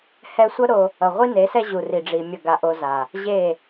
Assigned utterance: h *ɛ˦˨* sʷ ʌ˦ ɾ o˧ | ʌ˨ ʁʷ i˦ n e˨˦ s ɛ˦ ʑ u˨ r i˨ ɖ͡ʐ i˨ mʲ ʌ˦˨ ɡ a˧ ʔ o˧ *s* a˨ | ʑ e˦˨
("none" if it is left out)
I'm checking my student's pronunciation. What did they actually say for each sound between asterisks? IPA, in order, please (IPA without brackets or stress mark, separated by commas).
ɛ˧, z